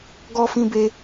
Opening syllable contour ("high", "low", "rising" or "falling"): high